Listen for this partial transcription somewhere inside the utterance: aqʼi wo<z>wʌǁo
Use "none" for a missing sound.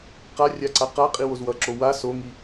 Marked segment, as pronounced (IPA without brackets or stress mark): z